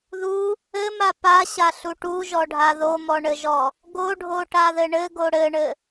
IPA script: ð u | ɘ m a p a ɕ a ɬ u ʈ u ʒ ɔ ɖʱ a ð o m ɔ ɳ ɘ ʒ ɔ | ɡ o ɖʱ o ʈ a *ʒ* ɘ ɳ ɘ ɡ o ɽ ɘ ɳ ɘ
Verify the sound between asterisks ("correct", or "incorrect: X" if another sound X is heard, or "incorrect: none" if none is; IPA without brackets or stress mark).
incorrect: ð